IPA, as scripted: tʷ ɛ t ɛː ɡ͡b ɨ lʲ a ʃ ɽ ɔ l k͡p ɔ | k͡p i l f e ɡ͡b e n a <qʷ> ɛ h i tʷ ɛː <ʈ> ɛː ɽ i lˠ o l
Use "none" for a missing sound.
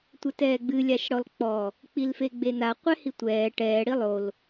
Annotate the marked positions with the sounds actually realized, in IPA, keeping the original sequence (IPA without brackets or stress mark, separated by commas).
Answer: qʷ, ʈ